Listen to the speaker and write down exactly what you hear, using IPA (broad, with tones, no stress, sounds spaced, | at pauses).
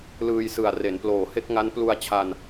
l ɯː˧ j s ɯ˨˩ a̯ r e˩˦ n p l oː˨˩ h e˥˩ k̚ ŋ a˦˥ n p l u˧ a̯ t͡ɕʰ a˧ n